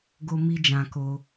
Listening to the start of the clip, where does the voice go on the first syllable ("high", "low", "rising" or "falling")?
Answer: high